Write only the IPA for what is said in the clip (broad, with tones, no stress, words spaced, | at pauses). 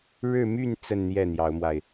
ɻɻ̩˥˧my˥˧n t͡sə˥˧nn̪jɛ˥˩n̪jɑ˧˥ʊ̯mwa˧ɪ̯